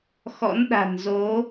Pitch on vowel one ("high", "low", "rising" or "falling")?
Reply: rising